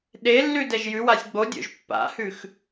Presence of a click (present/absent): absent